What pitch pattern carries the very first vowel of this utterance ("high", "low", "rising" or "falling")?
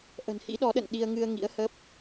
low